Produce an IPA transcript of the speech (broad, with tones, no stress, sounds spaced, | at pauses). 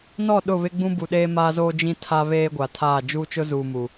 n ɔ˦˨ ɗ ʊ˦˨ β ɪ˦ ɡ͡b ũ˦ b u˨ ɗ eː˦ m aː˦ z oː˦ d͡ʒ ĩ˦ tʰ a˦ β eː˦ ɡʷ a˨ tʰ aː˦˨ d͡ʒ uː˦ t͡ʃ ʊ˦ z uː˨ m u˨